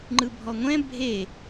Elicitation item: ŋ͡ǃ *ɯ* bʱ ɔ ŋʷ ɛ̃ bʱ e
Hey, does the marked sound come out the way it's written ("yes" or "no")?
yes